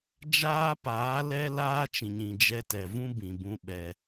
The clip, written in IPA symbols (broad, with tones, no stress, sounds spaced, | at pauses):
d͡ʒ aː˦ p aː˨˦ l ɛ˦ l aː˦ t͡ʃ ĩ˨ ɲ ĩ˨ d͡ʒ ɛ˧ t ɛ˨ v ũ˦ b ĩ˨ b ũ˦ ɓ ɛ˧